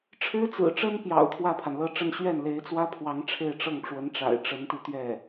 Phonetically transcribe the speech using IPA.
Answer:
ʈ͡ʂʰ ɻ̩˥ t͡s ɹ̩˨˩ ʈ͡ʂ ə˥ n p j ɑ̰˨˩ ʊ̯ t̪ʰ w ä˥˩ pʰ a˩ n l ɤ˥˧ ʈ͡ʂ ə˥˧ n ɕ ɥ ɛ˥˩ n l e˧˥ ɪ̯ t͡s w ä˥ pʰ w ɑ˧˥ ŋ ʈ͡ʂʰ e˥˧ ɪ̯ ʈ͡ʂ ɤ˥˩ ŋ ʈ͡ʂ w ə˧˥ n ʈ͡ʂ a̰˨˩ ɪ̯ ʈ͡ʂ ə˧˥ n t̪ i˧ t̪ ɥ ɛ˥˩

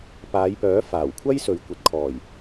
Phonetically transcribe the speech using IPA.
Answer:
p aː˨˧ j p œː˨˥ f aː˨˩ w kʷʰ ɐ˥ j s ɵ˨ ɥ kʷ ɐ˨ t̚ kʰ ɔː˨˩ j

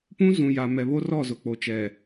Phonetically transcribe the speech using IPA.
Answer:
p ũ˦ z ũ˨ j a˨ m ɛ˨ β o˦ r ɔ˦˨ z ʊ˨ k͡p o˨ t͡ʃ ɛ˨

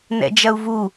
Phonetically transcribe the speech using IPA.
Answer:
n ɛ̰ d͡ʒ ɐ u̯ v u

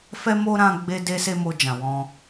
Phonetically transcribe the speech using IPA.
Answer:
f ɛ˦ m o˦ ɾ ã˦ ɡ͡b e˦ d e˦ s e˦ m o˧ d͡ʒ ã˨ w ɔ̃˧

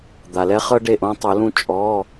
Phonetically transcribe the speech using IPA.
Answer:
d̪ a˩ l ɛ˦ χ ɤ˦ ɖ e˥˩ ʔ õ˦ tˤ o˨˩˦ l ũ˥˩ t͡ʃʼ ɔ˩˧˩

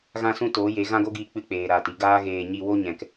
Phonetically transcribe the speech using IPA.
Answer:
ɣ ã˧ s ũ˧ t oː˨˦ j e˨˦ ɣ ã˦ ɡ o˦ ɡ iː˧ k͡p ɨ˧ k͡p eː˨ ɾ aː˨ t i˧ ɡ aː˦ ɣ eː˧ ɲ i˧ w o˦ ɲ ɛ̃˨ k

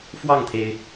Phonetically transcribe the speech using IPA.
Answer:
f w ɑ˥˩ ŋ t̪ʰ e˩ ɪ̯

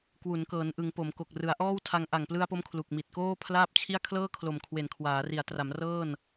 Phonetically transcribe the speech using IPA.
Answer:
k w u˩˦ n k ɤː˩˦ n ʔ ɯ˩˦ ŋ p o˩˦ m k o˨˩ k̚ r ɯ˩˦ a̯ ʔ ɔː˥˩ w tʰ a˧ ŋ ʔ a˨˩ ŋ p l ɯ˧ a̯ p o˦˥ m kʰ l u˨˩ k̚ m i˨˩ t̚ k oː˥˩ pʰ l aː˥˩ p̚ t͡ɕʰ i˥˩ a̯ kʰ l ɤː˥˩ kʰ l o˨˩ m kʰ w e˨˩ n kʰ w aː˩˦ r i˩˦ a̯ t r a˩˦ m r ɤː˥˩ n

